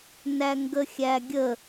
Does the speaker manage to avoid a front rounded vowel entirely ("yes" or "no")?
yes